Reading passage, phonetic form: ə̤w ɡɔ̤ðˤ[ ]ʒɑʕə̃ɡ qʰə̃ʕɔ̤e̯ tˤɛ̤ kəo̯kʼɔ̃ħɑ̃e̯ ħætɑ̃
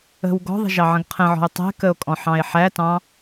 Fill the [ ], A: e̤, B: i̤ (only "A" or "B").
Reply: B